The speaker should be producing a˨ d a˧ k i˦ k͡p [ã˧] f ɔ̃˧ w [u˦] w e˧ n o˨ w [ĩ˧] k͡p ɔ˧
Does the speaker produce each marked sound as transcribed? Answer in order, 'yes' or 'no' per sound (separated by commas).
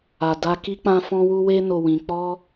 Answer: yes, no, no